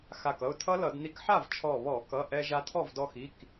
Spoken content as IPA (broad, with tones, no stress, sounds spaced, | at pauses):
x a˧˩ k ʌ˩˧˩ ʊ̯ tʰ ʌ˦˥ l ʌ˧˩˧ d n i˧ k ħ a˥˩ v t͡ʃʰ ɔ˧˩ β ɔ˧˩˧ k ʌ˩˧˩ ʔ ɛ˧ ʒ a˧ tʰ ɔ˥˩ v d ɔ˧ x i˩˧˩ k